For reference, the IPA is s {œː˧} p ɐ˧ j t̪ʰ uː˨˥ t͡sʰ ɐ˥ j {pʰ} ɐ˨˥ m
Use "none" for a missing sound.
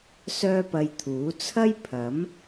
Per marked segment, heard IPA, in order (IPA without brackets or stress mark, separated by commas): œː˥, pʰ